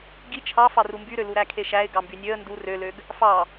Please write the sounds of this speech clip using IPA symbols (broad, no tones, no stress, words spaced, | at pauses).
ɡi t͡ʃʰɑfɑ rumbyɾølu ɾækʰeʃæɪ̯ ɡɑmbynʲøə̯ ndu røløɡ | fɑ